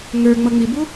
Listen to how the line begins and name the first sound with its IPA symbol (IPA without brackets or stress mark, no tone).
ŋ